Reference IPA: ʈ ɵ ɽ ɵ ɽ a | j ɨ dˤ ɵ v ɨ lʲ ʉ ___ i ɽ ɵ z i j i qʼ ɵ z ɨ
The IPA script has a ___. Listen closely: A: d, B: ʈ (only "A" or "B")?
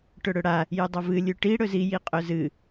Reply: B